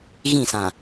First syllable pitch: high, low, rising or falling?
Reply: falling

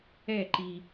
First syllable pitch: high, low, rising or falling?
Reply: falling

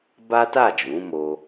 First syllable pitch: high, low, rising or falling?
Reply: high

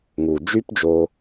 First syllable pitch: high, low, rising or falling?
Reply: low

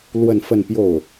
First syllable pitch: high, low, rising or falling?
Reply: falling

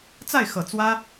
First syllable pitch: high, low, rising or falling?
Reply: falling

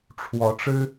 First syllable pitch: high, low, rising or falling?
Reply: rising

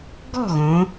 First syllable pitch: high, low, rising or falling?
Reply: falling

